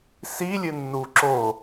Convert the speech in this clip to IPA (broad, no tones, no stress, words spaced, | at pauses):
silʲɨnːu ǁo